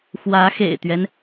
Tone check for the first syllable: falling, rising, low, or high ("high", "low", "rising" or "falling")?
rising